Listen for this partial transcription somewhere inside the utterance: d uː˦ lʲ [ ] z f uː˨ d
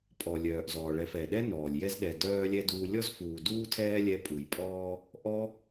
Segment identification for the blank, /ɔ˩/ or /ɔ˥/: ɔ˥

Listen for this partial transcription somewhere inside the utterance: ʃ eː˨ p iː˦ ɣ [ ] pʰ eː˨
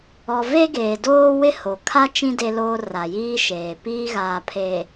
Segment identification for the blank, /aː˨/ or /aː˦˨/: aː˨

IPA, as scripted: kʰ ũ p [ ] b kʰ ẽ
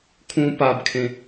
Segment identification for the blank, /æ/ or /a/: a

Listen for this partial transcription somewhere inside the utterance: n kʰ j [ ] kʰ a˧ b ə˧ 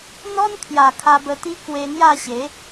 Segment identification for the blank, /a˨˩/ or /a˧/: a˨˩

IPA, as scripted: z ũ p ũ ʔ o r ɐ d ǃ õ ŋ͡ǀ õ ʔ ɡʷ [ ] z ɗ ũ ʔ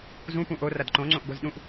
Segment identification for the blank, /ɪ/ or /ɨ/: ɨ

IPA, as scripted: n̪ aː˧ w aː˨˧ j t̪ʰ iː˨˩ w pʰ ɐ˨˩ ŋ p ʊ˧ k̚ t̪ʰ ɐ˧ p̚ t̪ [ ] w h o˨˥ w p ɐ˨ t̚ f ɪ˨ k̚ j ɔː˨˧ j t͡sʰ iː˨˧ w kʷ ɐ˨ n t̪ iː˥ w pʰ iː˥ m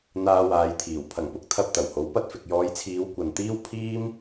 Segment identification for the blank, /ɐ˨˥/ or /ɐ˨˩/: ɐ˨˩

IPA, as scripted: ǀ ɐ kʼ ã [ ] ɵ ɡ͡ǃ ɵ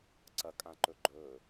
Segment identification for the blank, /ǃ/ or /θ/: ǃ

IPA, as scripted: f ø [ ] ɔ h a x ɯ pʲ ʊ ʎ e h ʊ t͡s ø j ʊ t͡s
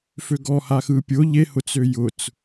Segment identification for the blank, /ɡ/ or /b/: ɡ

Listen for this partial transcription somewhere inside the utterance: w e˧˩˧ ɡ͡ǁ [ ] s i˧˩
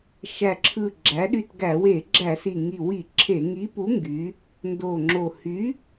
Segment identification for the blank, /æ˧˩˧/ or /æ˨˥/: æ˧˩˧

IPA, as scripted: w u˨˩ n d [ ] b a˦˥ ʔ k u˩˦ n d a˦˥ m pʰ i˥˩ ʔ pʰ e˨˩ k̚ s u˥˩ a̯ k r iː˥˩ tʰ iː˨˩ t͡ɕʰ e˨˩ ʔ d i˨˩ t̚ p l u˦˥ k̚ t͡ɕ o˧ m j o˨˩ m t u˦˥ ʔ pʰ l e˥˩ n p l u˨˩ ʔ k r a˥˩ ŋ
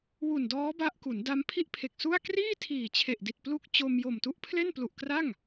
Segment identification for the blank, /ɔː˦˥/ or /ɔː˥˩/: ɔː˦˥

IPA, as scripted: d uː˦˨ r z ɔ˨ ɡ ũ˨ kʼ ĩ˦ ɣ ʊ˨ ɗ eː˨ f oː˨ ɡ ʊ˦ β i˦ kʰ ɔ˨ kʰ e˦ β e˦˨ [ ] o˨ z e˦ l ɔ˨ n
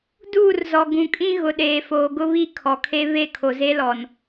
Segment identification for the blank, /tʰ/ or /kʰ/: kʰ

